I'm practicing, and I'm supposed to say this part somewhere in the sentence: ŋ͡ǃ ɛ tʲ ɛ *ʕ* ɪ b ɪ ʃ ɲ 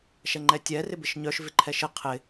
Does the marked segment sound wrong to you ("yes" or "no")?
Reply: yes